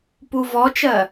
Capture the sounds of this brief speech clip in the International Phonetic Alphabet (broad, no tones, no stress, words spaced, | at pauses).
puvɔt͡ʃɜ